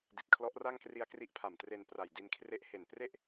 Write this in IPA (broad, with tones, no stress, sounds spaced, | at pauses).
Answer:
d i˨˩ t̚ kʰ l ɔ˦˥ ʔ r a˥˩ ŋ k r i˦˥ a̯ k r i˦˥ ʔ pʰ a˨˩ m t r e˧ n p r a˨˩ j d i˧ n kʰ r e˦˥ ʔ h e˨˩ n p r e˥˩ ʔ